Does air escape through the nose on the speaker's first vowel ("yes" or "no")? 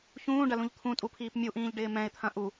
yes